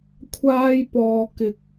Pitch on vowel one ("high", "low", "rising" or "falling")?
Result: high